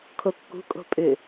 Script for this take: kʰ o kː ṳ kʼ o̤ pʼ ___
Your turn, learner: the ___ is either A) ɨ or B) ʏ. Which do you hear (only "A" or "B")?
B